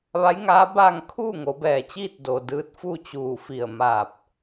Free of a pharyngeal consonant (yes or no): yes